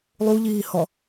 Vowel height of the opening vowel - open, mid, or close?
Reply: close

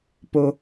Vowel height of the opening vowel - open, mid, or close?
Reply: mid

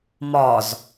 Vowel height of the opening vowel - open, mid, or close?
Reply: open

